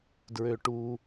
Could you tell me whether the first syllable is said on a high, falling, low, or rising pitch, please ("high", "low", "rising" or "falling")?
low